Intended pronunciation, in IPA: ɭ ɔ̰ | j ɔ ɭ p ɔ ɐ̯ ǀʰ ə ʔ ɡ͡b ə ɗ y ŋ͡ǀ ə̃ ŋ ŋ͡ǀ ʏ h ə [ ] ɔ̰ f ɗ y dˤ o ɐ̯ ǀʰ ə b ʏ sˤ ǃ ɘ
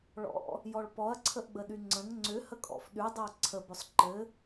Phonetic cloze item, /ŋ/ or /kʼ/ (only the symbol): kʼ